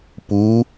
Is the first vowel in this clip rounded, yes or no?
yes